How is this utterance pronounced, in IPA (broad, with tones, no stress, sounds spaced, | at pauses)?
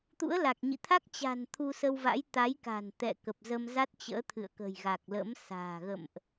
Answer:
t̪ ṵ˧˥ ə̯ l a˨˩ k̚ ɲ ḭ˧˨ t̪ʰ a˦˥ k̚ t͡ɕ a̤˨˩ n t̪ʰ u˧ s ə˧ w v a̰˧˥ j t̪ a˨˦ j k a̤˨˩ n t̪ ɛ̰˧˨ k ə˨˩ p̚ z ə˧ m z a˦˥ t̚ t͡ɕ ə̰ː˧˥ t̪ʰ ɨ̰˧˨ ə̯ k ə̤˨˩ j ɣ a˨˩ k̚ l ə̰˧˥ m s a̤ː˨˩ ɣ ə̰˧˨ m ʔ